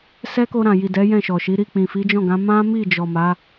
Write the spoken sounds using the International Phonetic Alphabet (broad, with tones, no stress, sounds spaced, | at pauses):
s ɛ˦ k o˧ ɾ ã˨ j i˨ d ɛ˨˦ j ɛ̃˦˨ ʃ ɔ˨ ʃ i˨˦ ɾ i˦˨ k͡p ĩ˨ f i˨˦ d͡ʒ ɔ̃˦˨ ɡ ã˨˦ m ã˦ m i˦˨ d͡ʒ ɔ˨ m a˨˦